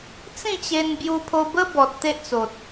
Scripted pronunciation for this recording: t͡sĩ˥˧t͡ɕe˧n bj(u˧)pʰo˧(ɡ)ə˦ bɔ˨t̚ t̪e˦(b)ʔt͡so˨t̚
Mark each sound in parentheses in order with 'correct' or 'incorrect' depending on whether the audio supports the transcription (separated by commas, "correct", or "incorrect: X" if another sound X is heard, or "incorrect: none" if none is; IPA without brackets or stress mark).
correct, incorrect: b, incorrect: none